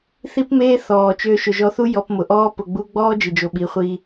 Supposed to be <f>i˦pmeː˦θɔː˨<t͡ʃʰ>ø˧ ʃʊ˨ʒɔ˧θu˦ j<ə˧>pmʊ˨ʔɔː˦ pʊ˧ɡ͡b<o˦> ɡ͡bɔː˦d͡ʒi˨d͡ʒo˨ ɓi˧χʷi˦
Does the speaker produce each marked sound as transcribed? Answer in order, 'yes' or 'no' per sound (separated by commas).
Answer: no, no, no, no